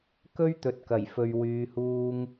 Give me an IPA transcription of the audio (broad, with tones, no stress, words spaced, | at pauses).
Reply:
kɵ˥ɥt̪ɵ˨t̚ kɐ˨˩jfɵ˨ɥ wyː˨˧huː˧ŋ